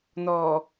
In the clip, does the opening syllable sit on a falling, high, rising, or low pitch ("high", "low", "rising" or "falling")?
low